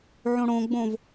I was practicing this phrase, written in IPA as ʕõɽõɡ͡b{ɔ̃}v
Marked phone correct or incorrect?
incorrect